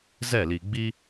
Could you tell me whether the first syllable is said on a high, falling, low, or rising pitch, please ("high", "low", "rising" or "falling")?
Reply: falling